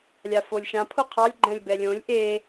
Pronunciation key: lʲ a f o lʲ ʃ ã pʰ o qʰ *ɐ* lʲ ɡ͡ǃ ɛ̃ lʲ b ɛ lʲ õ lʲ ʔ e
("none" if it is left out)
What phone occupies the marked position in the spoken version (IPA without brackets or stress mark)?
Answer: ɑ